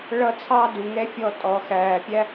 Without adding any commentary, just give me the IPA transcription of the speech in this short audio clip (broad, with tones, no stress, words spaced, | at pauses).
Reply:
ɭʌ˦t͡sʰɑ˦du˨ŋɛ˦ fʲɔ˦tʼɔ˨xæː˨pʲæ˦